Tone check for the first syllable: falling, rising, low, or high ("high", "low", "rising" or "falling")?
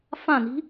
falling